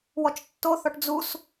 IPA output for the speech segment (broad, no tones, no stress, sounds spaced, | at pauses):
w ɔ t͡ʃ tː o θ ɔ ʈ d͡z u s